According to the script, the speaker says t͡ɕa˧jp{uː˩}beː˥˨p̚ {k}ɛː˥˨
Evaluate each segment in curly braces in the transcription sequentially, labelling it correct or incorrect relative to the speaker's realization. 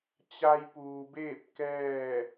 correct, correct

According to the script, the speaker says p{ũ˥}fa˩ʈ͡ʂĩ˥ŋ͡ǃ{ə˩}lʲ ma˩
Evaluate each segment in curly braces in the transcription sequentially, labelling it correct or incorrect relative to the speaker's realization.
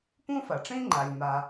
correct, incorrect: a˩

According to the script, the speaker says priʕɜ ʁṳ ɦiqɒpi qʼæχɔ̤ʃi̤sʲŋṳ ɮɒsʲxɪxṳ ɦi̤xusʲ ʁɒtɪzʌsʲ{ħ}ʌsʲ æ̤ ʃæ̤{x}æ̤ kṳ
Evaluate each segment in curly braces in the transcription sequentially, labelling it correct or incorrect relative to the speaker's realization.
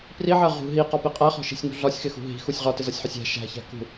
correct, incorrect: ç

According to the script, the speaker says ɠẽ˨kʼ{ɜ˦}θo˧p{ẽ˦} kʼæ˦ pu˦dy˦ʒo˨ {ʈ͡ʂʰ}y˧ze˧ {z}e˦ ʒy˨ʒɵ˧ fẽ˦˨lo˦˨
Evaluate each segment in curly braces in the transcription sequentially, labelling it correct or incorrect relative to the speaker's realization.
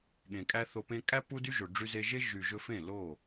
incorrect: æ˦, correct, incorrect: ɖ͡ʐ, incorrect: ʒ

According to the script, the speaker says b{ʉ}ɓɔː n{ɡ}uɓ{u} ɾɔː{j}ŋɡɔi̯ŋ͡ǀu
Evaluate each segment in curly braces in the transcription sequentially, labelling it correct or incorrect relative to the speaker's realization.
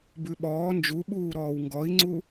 correct, incorrect: d͡ʒ, incorrect: uː, incorrect: w

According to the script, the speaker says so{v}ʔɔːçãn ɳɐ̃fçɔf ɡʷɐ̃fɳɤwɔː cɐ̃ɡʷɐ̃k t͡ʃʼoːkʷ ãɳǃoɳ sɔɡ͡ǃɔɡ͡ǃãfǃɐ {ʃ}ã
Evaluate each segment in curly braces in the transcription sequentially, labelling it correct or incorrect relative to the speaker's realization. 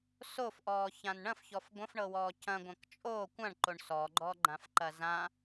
incorrect: f, incorrect: z

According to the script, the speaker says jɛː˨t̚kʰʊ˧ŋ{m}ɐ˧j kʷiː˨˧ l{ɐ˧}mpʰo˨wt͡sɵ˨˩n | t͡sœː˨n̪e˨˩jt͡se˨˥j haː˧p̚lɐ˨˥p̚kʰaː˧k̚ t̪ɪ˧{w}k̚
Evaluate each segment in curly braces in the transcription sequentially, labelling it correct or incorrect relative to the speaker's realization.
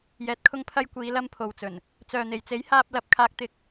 incorrect: pʰ, correct, incorrect: none

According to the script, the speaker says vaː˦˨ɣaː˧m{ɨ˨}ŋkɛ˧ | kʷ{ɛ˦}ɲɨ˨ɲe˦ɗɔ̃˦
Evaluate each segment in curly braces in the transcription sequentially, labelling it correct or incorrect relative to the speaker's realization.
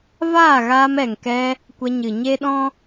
incorrect: ɛ˨, incorrect: ɛ˧

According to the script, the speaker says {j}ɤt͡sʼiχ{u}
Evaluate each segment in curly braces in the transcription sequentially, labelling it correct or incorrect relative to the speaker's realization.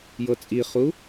correct, correct

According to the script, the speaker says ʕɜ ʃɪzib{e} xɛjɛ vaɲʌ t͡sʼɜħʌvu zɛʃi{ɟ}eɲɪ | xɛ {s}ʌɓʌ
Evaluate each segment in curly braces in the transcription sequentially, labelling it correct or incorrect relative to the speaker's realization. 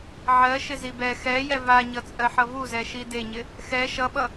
incorrect: ɛ, incorrect: d, incorrect: ʃ

